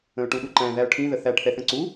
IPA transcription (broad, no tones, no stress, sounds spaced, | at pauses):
ə̃ ʊ̯ ʈ ũ ɗ u ǃ æ̃ ð æ ʊ̯ ʈʰ ĩ ð ə θ æ ʈ θ ɛ θ ə̃ ǀ u